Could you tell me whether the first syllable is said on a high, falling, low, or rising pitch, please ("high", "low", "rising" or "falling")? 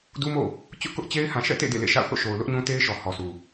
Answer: high